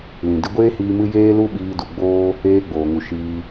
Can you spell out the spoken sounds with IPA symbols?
l ĩ˨ d ɨ˧ ɡʷ eː˦ h iː˧ m ɨ˦ j eː˦ l u˦ ɓ iː˧ d u˨ ɡ͡b oː˦ | eː˦ ɡ͡b oː˨ ŋ u˨ ʃ iː˧

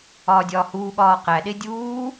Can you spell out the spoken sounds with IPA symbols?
ɒː dʲ ɒː h uː ɠ ɒː q æ ɗ e dʲ uː

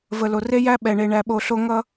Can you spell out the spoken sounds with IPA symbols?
v ə˨ l o˨ r e˦ j æ˦ ɓ ɛ˨ ɳ e˨ ɳ æ˨ ɓ o˨ ɬ o˦ ŋ ʌ˦

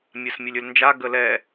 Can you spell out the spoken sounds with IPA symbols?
mʲ a s mʲ ɵ lʲ ɵ l n d͡ʒ a ɡ ə l ɛ

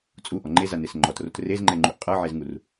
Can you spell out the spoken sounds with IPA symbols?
t͡sʼ u ʔ ɔ ŋ͡ǃ e z a n e s ŋ͡ǃ ɔ t r o t r e z ŋ͡ǃ ɛ ŋ͡ǃ u ʔ qʼ ɤ ʕ e z ŋ u r

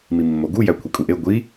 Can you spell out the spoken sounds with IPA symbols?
m i mː o ɡ u j æ kʷʰ i kʼ u ʔ e ɡʷ i

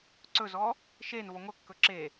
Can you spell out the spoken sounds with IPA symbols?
ǀ ɵ z ɔ | ʃ e n v ɔ ŋʷ œ kː ɵ ǁ e

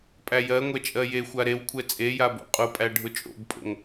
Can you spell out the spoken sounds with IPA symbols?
pʼ æ j ɜ ŋʷ ɛ t͡ʃʼ ɜ j e xʷ a ɾ e w kʷʰ ɛ t͡sʼ e j a b o̰ qʼ ʊ pʼ æ ɖʱ ʊ t͡ʃʼ o̰ b pʼ o̰ ŋ

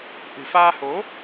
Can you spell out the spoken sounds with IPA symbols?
ʔ ɨ̤˨˩ f aː˧ h o˨˦

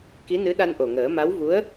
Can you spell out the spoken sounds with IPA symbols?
k i˧˥ n ɨ˧˥ ɗ a˧ n ʔ o˨˩ ŋ əː˨˩˦ m a˧˥ w v u˧˥ ə̯

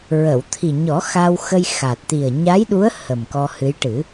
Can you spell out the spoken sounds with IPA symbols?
ɹ ə˨˩˨ w t̪ʰ i˨˩ ɲ ɔ˨˩˦ x a˧ w x ə˧ j x a˨˩ t̚ t̪ i˨˩ ə̯ ɲ a˧˥ j ɗ u˧˥ ə̯ h ə˨˩ m k ɔ˧ h ɨ˧˥ j ʈ ɨ˨˩˦

